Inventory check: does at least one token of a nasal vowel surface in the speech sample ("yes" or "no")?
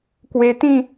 yes